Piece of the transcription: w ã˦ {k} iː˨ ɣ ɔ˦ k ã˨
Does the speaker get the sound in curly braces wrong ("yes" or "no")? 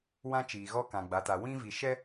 yes